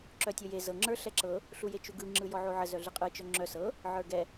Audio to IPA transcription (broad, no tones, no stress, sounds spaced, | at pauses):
ǁ œ tʲ o j e z ɤ ŋ͡ǁ ə˞ ɬ ɛ ǁ ɤ | ɬ u j e t͡ʃ u ɡ ɯ ŋ͡ǁ ɯ j ɔ ʕ o ʕ ə z œ ɮ ɯ qʼ ɯ t͡ʃ œ ŋ͡ǁ œ s ɤ | ʕ ə˞ ɡ ɛ